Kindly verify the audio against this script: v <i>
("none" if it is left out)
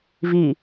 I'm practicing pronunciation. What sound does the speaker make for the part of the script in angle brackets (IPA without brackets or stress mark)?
i